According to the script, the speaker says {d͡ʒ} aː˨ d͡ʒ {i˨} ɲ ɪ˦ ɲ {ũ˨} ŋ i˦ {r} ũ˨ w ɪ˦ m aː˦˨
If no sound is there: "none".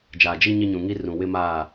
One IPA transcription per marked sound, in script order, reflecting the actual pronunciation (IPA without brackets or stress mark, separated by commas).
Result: d͡ʒ, i˦, ũ˨, r